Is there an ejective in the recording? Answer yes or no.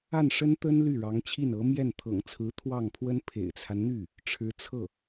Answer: no